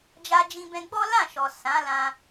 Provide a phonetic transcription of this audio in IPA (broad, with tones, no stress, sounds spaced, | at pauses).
d͡ʒ a˧ d͡ʒ ĩ˧ b ɛ̃˧ ɡ͡b ɔ˦ l ã˦˨ ʃ ɔ˨ s ã˨˦ l ã˧